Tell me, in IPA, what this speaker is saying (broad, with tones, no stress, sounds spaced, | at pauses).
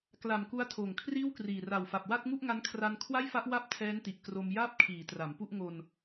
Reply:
k l a˨˩ m k u˦˥ a̯ tʰ oː˨˩ ŋ kʰ r iː˥˩ w k r iː˨˩ r a˨˩ w f a˨˩ p̚ w a˥˩ t̚ ŋ u˥˩ ʔ ŋ a˦˥ n kʰ r a˧ n kʰ w a˥˩ j f a˦˥ ʔ w a˦˥ p̚ tʰ ɛː˦˥ n t i˨˩ ʔ k r o˧ m j aː˥˩ p̚ kʰ iː˩˦ t r a˩˦ m p u˥˩ ʔ ŋ o˧ n